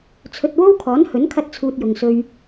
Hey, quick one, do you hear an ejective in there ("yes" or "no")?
no